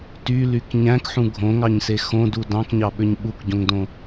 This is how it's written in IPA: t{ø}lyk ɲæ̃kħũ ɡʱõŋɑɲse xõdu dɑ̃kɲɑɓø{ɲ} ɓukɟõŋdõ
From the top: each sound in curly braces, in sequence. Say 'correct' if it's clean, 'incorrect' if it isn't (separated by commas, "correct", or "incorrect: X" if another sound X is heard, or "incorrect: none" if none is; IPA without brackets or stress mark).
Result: incorrect: y, correct